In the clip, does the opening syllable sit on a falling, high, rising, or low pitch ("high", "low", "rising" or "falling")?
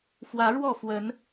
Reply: rising